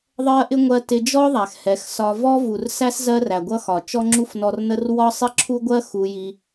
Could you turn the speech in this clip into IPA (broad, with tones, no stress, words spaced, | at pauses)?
ðˤɜ˦ʔɪ˦ ŋʷɜ˧ tɪ˧d͡ʒɔ˦ðˤæ˨x hɛ˨˦xsɒ˧ vɔ˦vu˨rsæ˦s zɜ˦ræ˨ɡʷʌ˦ xɒ˨t͡ʃɔ˦ŋ͡ǁu˦f nɔ˧rnə˦r wɒ˦sˤɪ˦ǁʰu˦ɡʷɜ˦ xu˧ji˧